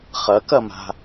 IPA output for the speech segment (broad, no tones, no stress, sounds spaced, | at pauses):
χ ɐ k ɐ m a̤